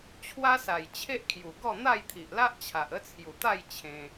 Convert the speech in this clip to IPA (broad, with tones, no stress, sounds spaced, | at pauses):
t͡ɕʰ w a˦ s a˨˩ j t͡ɕʰ e˦ ʔ kʰ j u˨˩ ɡ ɔ˥˧ n̪ a˥˧ j t̪ʰ i˨ ʔ l a˦ ʔ t͡ɕʰ a˨ ʔ ə˦ t͡sʰ j u˨˩ t̪ a˥˧ j t͡ɕʰ ẽ˧